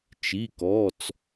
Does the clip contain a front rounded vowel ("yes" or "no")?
no